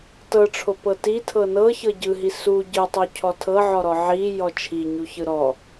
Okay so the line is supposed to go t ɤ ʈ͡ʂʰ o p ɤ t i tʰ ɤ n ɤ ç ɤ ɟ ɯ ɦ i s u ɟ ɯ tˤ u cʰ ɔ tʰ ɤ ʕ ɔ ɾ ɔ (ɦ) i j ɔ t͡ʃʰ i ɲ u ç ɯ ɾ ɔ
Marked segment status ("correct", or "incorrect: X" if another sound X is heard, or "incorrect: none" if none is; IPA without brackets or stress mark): incorrect: ʕ